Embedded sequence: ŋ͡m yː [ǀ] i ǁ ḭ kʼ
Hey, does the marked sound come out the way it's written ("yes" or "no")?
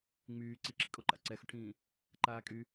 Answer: yes